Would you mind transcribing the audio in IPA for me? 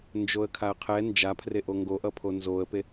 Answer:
nd͡ʒoə̯kʰaə̯qʰɛ nd͡ʒapʰre ʔoŋɡoʔʌpʰo nzoə̯pe

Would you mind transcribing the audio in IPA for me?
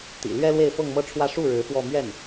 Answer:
t̪ḭ˨˩lɥɛ˥ lwe˥˧ɪ̯fɤ˥˧ŋmɤ˥˧ʈ͡ʂʰwä˥˧ ʂu˥˩ɻɻ̩˧˥ fwɔ˥˧ mɥɛ˥˩n

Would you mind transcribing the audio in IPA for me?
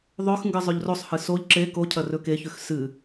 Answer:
ðˤɵx ŋɡɨzˤʉʎrosˤhɨ soʎ ǁe ko cʰɐrɵkeçʉx sɨ

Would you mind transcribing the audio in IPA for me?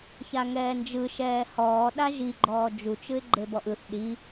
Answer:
çaŋɛːnd͡ʒɯ ʃɛːhɔː ɗaʒiɡ͡ǃɔː d͡ʒut͡ʃɯɪ̯ ɡ͡ǃebɔʔɯθ ɗi

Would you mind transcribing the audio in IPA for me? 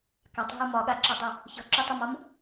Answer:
katˤɦɤ mɒɠaǁɒdˤy | çɤǁytˤumɒm

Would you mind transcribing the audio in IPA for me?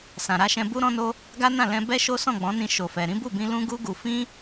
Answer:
sã˨ɾa˧ʃɛ̃˧bu˦ ɾɔ̃˦no˦ | ɡa˦ nã˦˨ lɛ̃˧ bɛ˦ʃo˦ sɔ̃˦˨ɡ͡bɔ̃˨˦nĩ˧ ʃo˨fɛ˨ ɾĩ˨˦bu˦˨bĩ˧ lũ˦ɡu˦ɡu˧ fĩ˦

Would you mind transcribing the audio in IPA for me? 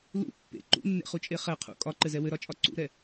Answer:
lṵ pːḛ ǃṵnːḛχut͡ʃʼe χɛ qʰṵ kʼɒǃɘzɛ wɘɾɒt͡ʃʼɒ ǀṵɾɛ

